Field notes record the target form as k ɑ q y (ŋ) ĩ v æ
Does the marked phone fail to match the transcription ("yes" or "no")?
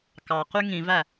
no